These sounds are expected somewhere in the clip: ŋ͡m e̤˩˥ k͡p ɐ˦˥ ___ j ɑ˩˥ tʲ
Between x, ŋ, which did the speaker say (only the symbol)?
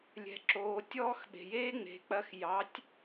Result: x